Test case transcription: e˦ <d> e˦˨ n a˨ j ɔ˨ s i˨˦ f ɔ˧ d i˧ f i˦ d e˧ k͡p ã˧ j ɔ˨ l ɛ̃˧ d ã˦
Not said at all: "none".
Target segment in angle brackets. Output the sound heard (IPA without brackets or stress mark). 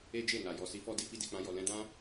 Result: d͡ʒ